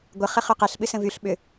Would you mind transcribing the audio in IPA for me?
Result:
ɡʷəχə χʏqɛɬ ɓɨsə̃vyɬ ɓʏ

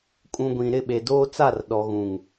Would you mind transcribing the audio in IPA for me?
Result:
kʼũ˨ɡʷĩ˨ ɾɪ˦˨ɓe˨doː˦t͡sa˦˨r ɗɔ˨ɣũ˨ŋ

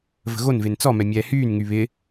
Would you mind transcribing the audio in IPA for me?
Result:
və̤ɣonven t͡sɔmɛ mʲɛːhyːnŋy βɪ

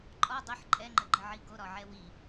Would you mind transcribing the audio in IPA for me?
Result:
ǃʼɒ dˤəħ ǃʼɛŋ͡ǃəɡ͡ǃəʕi ɡoɾɒʕɛ wi

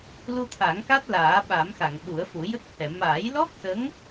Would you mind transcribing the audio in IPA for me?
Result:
lu˧t̪ʰa˨˩˦ŋka˦˥t̚ laː˨˩˦ɓa˨˩˦mxa˨˩˨ŋ ɓu˨˩˦ə̯fu˨˩˦ jə˦˥k̚hɛ˨˩˨ maː˨˩˦jlɔ˦˥k̚sə˧˥ŋ

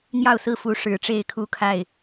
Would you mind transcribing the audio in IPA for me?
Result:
n̪jɑ˥˨ʊ̯sɹ̩˥˨fu˨˦ ʂɻ̩˨˦ʈ͡ʂe˥˨ɪ̯kʰu˦kʰa˥˨ɪ̯

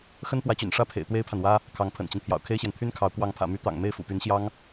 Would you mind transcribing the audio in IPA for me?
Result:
xə˥npwä˧˥t͡ɕy̰˨˩n ʂä˥˩pʰḛ˨˩ɪ̯ t̪we˥ɪ̯pʰa˨nwä˥ | kʰɑ˧˥ŋpʰə̰˨˩nt͡ɕi˦n pʰjɑ̰˨˩ʊ̯kʰe˥ɪ̯ɕjɛ˨n t̪ʰy˥n kʰɑ˧˥ʊ̯ kwɑ˧˥ŋpʰä̰˨˩my˧˥ t̪ɑ̰˨˩ŋ me˥˩ɪ̯fṵ˨˩py˧˥n ɕjɑ˥ŋ

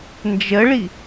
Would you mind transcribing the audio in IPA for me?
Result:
nd͡ʒəɭi

